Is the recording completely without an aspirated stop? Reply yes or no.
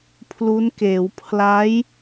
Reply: no